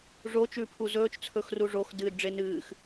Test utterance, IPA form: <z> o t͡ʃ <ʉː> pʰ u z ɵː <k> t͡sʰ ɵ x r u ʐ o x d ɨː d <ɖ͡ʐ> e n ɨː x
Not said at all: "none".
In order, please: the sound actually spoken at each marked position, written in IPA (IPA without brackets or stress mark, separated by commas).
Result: ʐ, ʉː, t͡ʃ, ɖ͡ʐ